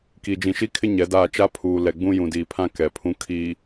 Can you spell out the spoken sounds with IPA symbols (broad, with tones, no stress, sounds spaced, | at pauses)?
k i˨ d͡ʒ ĩ˨ ʃ i˦ kʰ ɪ˦ ɲ ɛ˨˦ d aː˦˨ t͡ʃ a˦ pʰ uː˨ l ɛ˨ ɡ͡b ũ˦ j ũ˨ d iː˨ pʰ ã˦ k ɛ˨ pʰ ũ˦ kʰ iː˨